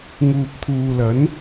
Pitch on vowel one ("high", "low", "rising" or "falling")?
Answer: low